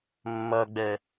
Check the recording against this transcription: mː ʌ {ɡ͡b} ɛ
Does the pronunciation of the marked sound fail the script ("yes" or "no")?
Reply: no